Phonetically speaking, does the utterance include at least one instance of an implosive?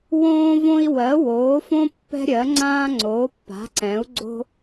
no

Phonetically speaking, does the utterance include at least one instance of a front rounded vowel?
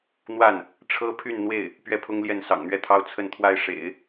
yes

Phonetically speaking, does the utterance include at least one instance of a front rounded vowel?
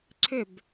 yes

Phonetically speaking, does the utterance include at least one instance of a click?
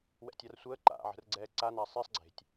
yes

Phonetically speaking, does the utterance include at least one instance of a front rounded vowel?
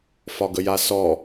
no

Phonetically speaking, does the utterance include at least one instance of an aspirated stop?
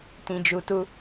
no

